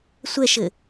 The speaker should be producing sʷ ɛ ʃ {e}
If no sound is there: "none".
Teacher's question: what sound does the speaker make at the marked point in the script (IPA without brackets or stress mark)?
ɘ